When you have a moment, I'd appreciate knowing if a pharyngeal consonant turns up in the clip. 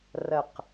no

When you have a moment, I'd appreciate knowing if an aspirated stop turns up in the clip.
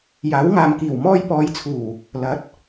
yes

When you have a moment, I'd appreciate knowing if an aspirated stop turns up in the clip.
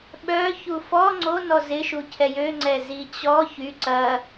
yes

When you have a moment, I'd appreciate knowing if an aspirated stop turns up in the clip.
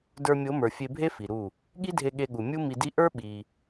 no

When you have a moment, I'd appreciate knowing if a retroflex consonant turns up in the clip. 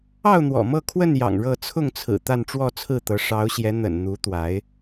yes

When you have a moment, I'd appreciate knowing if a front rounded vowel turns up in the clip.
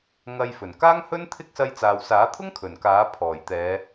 no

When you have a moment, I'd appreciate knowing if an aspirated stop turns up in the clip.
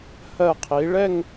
yes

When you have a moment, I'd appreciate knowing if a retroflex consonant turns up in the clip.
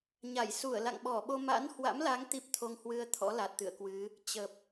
no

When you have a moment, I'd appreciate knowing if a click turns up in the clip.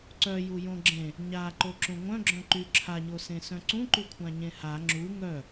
yes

